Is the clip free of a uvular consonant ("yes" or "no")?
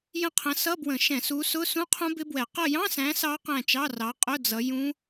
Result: no